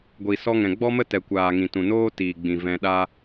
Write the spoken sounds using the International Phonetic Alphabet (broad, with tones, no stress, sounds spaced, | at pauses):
ɡʷ i˨ s ɔ˧ ŋ ɛ̃˨ ɡ͡b ɔ˦ m ə˦ t ɛ˨ kʷ aː˨ ŋ ĩ˨ t ũ˨ n oː˦ t iː˨ ɡ͡b ĩ˨ v ɛ̃˧ ɗ a˦